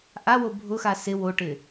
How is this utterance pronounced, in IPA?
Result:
ʔ a w o bʱ ʊ x a s ɪ w o ʈ ɪ

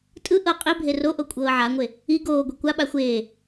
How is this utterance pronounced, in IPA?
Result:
tʼ ɯ ʔ ɤ qʼ i bʱ e r o ʔ o kʷʼ ɤː ʕ a ŋʷ e | i ɡ oː ɡʷ e kʷ a ɓ a xʷ eː

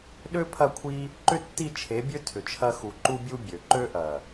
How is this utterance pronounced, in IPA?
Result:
ɗ ø˦ pʰ ɐ˦˨ kʷʰ i˦ | ǃ ʏ˦ tː i˦˨ t͡ʃʰ e˨˦ bʲ ø˦ tʰ ʏ˨ t͡ʃʰ ɐ˧ x u˨ ǃ u˦ bʲ u˦ bʲ ø˨ ǃ ø˧ ʔ ɐ˨

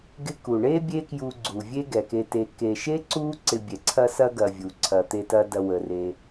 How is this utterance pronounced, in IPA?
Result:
ɡ ɪ˦ k u˩ ɳ e˥ bʲ e˦ k j u˨ ɡ͡ǀ u˩ vʲ e˦ ɡ ɛ˩ k e˨ t e˨ k e˨ ʃ e˥ ǀ u˦ ǀ ɪ˨ bʲ ɛ˩ ǀʰ ɐ˥ s ɐ˥ ɡ ɐ˨ vʲ u˩ ǀʰ ɐ˨ t̪ e˦ t ɐ˦ d ɐ˨ w ə˩ r e˨

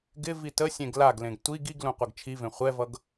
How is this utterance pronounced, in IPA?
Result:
ɡ ɪ v i t ə sʲ ẽ ɡ l a ɡ l ẽ ɡ tʷ i ɡ i ɡ l ũ qʷ ɤ ɡ t͡ʃʰ i v ẽ χʷ ɛ v ʌ ɡ

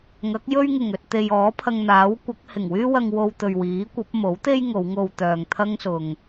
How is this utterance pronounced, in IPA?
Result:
ŋ ɐ˨˥ k̚ j ɵ˥ ɥ ŋ ɪ˨˩ ŋ ɵ˨ t̚ t̪ e˨ j ɔː˨˥ pʰ ɐ˧ ŋ n̪ aː˨˥ w kʷ ɐ˨˥ k̚ h ɪ˨˩ ŋ w yː˥ w ɐ˧ ŋ w o˧ w t̪ ɵ˨ ɥ w iː˨˥ kʷ ɐ˨˥ p̚ m o˨˥ w t̪ e˥ j ŋ o˨˧ w ŋ o˧ w t̪ œː˨ ŋ t̪ʰ ɐ˥ ŋ s ʊ˨ ŋ

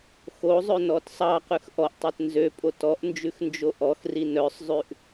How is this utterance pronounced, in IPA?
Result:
x o zˤ ɵ n ɔ t sˤ ɑ q ʉ x ʔ ɔ ʔ tˤ e t n z ø pʼ o t ɔ ʔ n d͡ʒ ʉ x n d͡ʒ o ʔ ɔ x r i n œ sˤ zˤ ʉ ʔ

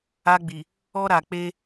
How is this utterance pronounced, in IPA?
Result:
a˦ ɡ͡b i˨ | ɔ˦ ɾ a˨ k͡p e˦

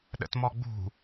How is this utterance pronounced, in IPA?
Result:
ɗ ə̰ t m ɔ ɡ͡b ṳ

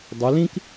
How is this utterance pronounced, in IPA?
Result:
dˤ ʊ˩˧ l ĩ˥ k

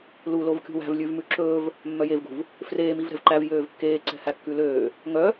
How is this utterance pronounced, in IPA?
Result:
l u l o v kʲ ṳ w æ̤ v lʲ ʉ v m ʉ ǁ ɵː v | mː œ j e v ɡ ṳ v | f r eː m i v ɾ ɛ̤ v ǃ æ v j øː v kː eː ǀ ɛ̤ h æ kː ʉ l øː | ŋ œ

